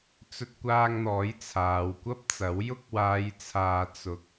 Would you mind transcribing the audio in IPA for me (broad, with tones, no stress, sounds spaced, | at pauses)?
t͡s ɵ˧ t̚ kʷ aː˧ ŋ n̪ ɔː˨˥ j t͡sʰ aː˨˧ w kʷ ɐ˥ p̚ t͡s ɐ˨˥ w j ʊ˥ k̚ w aː˨˧ j t͡sʰ aː˨ t͡s ʊ˨˥ k̚